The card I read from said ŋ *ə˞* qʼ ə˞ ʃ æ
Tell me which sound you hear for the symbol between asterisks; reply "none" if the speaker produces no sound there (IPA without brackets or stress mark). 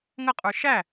ə